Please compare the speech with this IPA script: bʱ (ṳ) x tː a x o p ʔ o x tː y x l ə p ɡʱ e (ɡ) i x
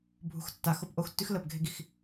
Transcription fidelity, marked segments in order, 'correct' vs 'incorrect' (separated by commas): correct, correct